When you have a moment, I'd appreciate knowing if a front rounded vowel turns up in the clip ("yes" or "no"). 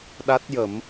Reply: no